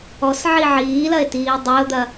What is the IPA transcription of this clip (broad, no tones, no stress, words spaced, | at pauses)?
ɔsʕi ʕiːlɐe̯tiː dˤeo̯d̪ɐ